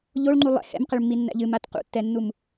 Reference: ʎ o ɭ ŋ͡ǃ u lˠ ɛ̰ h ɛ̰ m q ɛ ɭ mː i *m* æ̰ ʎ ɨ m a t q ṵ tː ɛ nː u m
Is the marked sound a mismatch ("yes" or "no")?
yes